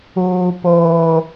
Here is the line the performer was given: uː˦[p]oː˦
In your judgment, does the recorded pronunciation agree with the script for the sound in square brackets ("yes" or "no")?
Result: yes